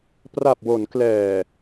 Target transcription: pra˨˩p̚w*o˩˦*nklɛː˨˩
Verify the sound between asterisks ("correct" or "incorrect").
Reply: correct